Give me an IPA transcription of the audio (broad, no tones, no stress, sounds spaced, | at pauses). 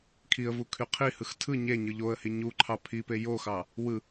kʰ i ə̯ v u kʰ y qʰ i h ɯ x tʰ ɯ ɲ e ɲ ɯ ʎ o ə̯ h i ɲ u ǃʰ ɑ pʰ i p e j o x ɑ | w ɯ